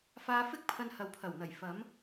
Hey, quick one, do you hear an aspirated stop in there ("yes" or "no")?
yes